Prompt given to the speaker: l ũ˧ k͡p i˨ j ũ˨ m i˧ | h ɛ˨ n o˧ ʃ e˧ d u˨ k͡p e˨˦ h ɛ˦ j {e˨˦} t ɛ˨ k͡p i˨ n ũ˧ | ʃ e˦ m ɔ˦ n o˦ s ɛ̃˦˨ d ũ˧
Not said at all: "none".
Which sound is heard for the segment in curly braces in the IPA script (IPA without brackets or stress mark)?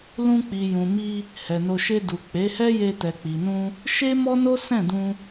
e˧